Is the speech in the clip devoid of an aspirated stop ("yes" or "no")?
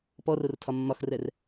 no